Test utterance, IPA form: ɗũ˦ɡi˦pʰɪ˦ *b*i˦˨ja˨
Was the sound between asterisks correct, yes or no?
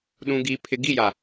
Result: no